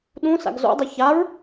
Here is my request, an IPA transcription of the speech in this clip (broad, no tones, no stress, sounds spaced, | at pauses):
ɗ ũ s a̰ ɡ z o̰ dˤ ɛ ç a ɹ